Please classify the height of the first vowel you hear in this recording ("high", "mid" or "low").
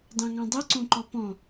low